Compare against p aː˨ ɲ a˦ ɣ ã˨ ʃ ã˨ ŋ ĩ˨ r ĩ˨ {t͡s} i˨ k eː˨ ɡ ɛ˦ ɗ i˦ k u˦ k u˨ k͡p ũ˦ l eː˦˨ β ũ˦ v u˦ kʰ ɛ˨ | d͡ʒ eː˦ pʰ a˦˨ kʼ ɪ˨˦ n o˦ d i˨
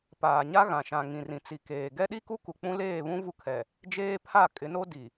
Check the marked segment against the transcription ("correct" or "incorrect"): correct